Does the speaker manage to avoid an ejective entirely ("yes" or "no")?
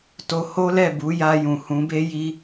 yes